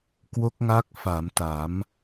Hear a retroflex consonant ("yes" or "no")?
no